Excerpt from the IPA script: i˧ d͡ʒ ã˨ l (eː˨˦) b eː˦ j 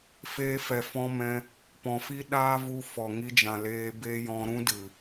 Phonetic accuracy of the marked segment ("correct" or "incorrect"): incorrect